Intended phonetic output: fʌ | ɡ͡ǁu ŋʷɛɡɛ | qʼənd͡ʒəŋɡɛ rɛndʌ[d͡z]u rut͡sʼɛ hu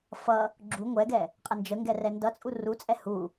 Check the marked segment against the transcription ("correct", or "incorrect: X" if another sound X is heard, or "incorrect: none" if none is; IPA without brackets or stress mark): incorrect: t͡sʼ